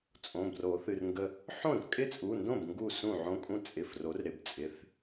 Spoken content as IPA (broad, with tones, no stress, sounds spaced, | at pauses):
t͡sʼ õ˩˧˩ b r o˨˩˦ θ ɨ˩˧˩ r ŋ ɡ ə˧ | ħ õ˥˩ r kʼ ɪ˦˥ t͡sʼ u˩˧˩ n d õ˥˩ b ŋ ɡ u˥˩ s ũ˥˩ ʕ õ˦˥ kʼ ũ˦˥ t͡sʼ ɪ˩˧˩ f r o˩˥ r ɾ ɪ˩˧˩ b t͡sʼ ɪ˩˧˩ θ